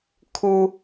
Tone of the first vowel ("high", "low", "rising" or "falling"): low